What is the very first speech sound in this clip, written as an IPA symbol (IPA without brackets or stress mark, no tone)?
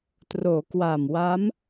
t